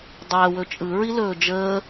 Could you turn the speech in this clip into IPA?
dˤ æ w ɵ t͡ʃʼ ɯ ɹ i l ɵː d͡ʒ əː

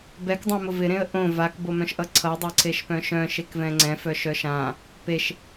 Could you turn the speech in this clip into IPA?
b ɛ k dˤ œ̃ m ʊ v ɪ ɾ ẽ ə̯ ʔ õ v a k b o m œ̃ ʃ ʔ ʌ ǀʰ ʌ dˤ e ǀʰ e ʃ p œ̃ ʃ œ̃ ʃ e k v ɛ̃ ŋ͡ǀ ɛ̃ f œ ʃ œ ʃ ã | p e ʃ

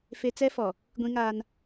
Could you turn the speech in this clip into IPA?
f e˦ t͡s ɛ˦ f ɔ˨ | ɡʷ ĩ˦ ŋ a˦ n

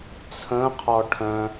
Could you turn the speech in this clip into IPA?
t͡sʰ ə̃ qʰ ɔ ʈʰ œ̃

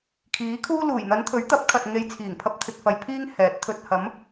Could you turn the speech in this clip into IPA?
kʰ iː˨˥ kʰ uː˥ l uː˨˩ j n̪ ɐ˨˧ n t̪ʰ ɵ˨˥ ɥ t̪ ɐ˨˥ p̚ kʰ ɐ˨ t̚ ŋ e˨˧ j t͡sʰ iː˨˩ ŋ pʰ ɐ˧ p̚ t̪ʰ ɪ˨ k̚ f ɐ˨ j pʰ iː˥ ŋ h ɛː˨˥ t̚ t̪ʰ ɵ˨ t̚ h ɐ˨˥ m

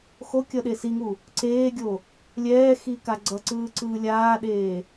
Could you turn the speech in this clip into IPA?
x o kʲ ʌ ɗ e s i ŋ u | ǀ eː ɡʲ o | lʲ ɛː x i k a ɡ͡ǀ ʌ ǀ ɯː ǀ ɯː lʲ aː ɗ eː

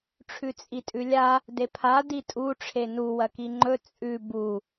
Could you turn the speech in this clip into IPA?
ʈ͡ʂʰ ʉ t͡sʼ i tʼ ʉ lʲ a | d e pʰ a d i tʼ u ʈ͡ʂʰ e n u w ɐ k i ŋ͡ǃ ɵ t͡sʼ ʉ b u

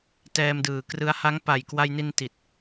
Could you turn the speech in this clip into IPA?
t ɛː˧ m d ɯː˨˩ k r ɯ˦˥ a̯ h a˦˥ ŋ p a˨˩ j k w a˧ j n i˧ n t i˨˩ t̚

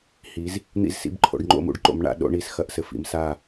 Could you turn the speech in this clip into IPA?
h i˨˦ z | n̪ ḭ˥˨ z s ḭ˥˨ b ǃʰ o̰˨˦ ɖ ŋ͡ǃ o̰˥˨ m ṵ˨˦ ɖ ǃ o̰˨˦ m ɳ a̰˨˦ ɗ o̰˨˦ ɳ i˨˦ s x ɐ˨˦ ʔ s ɘ˨˦ f ḭ˨˦ m s a˥˨

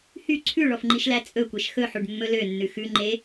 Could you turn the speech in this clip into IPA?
h y ǀʰ ʉ ɭ ɔ f ŋ͡ǃ i ʃ l æ t͡sʼ ɵ kʷ ɛ ʃ x ɵ ħ u ɖ mː ɵ l ø nː ʉ x ʉ ŋ͡ǃ e

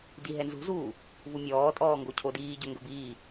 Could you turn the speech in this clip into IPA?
d i ɦ ɛ n z ṳ z uː | v u mʲ ɔː tʼ ɔː ŋ ɡ o cʰ o d iː ɟ ɵ ŋ ɡ ɵ b iː

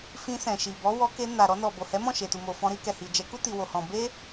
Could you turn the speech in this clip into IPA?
f ĩ˧ s ɛ̃˨ ʃ i˨ b ɔ˨˦ w ɔ˧ k e˧ n a˨ ɾ ɔ˧ n ɔ˨ b o˨ h ɛ˨˦ m ɔ̃˦˨ ʃ e˨ t u˨ m o˨ f ɔ̃˧ ɾ i˧ k ɛ˨ h i˨ d͡ʒ ɛ˨˦ k u˦ t i˧ w o˧ h ɔ̃˧ b e˦

